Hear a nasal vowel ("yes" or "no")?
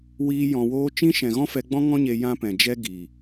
yes